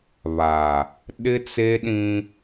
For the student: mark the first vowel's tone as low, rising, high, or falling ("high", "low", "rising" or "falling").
low